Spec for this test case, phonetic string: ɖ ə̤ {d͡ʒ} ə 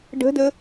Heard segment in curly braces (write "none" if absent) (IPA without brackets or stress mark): d